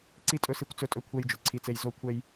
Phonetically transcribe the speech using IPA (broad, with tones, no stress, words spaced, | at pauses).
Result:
ǀi˥tʼɵ˥ si˥kʷt͡sɵ˥tʼɵ˥ kʷʰɛ˥jd͡ʒɵ˩ǀʰi˥t͡se˥j zo˥kʷʰɛ˥j